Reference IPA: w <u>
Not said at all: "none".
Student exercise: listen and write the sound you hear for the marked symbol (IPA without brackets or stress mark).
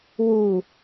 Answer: u